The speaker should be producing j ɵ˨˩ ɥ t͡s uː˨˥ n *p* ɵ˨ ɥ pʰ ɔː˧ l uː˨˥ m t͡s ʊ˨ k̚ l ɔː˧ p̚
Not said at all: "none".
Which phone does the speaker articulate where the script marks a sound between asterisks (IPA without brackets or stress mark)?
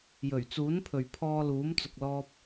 pʰ